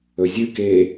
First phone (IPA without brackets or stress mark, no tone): ɵ